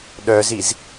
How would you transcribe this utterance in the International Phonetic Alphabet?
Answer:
ɗ œ z i z

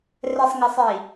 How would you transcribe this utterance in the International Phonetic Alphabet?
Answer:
r ɛ˨ sˤ ŋ ə˨ sˤ i˨

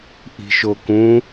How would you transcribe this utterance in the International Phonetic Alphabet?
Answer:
ʔ i̤ ʃ o k ũ

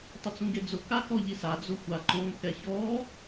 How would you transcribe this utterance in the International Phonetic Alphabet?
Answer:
tˤ ɪ t͡s ũ ɡ e d͡z ʊ k a k ɔ ʎ i s a d͡z ʊ xʷ a ǃ õ k ɛ ç ɔ

